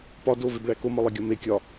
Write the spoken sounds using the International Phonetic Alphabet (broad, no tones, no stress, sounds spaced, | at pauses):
p ɒ d o v e b ɭ æ k o m ɒ lˠ e ɡʲ ɒ m e kʲ ɒ